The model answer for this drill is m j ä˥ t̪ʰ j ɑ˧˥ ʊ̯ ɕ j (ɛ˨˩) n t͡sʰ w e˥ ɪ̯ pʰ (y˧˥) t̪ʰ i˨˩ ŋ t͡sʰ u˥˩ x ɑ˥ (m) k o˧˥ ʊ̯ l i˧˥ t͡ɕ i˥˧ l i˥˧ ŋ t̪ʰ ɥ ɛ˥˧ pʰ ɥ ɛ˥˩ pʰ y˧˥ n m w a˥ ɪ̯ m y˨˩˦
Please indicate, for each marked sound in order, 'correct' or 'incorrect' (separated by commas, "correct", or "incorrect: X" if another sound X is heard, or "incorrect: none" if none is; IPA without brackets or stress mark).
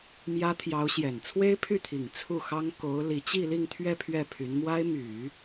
correct, incorrect: y˥˩, incorrect: ŋ